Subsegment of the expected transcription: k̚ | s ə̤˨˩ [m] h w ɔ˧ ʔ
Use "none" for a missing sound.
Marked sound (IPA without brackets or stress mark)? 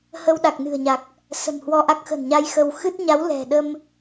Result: m